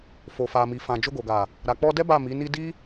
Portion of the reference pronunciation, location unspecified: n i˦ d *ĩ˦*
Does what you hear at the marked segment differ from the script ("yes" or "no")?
yes